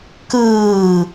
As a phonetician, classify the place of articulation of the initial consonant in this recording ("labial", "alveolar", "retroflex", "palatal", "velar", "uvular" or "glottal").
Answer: velar